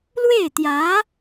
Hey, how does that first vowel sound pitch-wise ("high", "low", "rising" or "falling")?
falling